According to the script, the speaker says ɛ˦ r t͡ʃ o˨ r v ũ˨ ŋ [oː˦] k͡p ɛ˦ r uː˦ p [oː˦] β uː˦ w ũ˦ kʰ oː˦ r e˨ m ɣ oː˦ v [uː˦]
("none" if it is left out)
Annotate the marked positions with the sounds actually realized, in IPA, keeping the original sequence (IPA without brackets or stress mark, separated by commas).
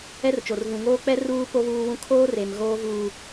oː˦, o˦, uː˦